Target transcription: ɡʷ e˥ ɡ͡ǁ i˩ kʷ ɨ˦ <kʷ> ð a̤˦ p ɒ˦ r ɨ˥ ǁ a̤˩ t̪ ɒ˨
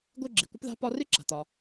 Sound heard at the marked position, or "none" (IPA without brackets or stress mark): p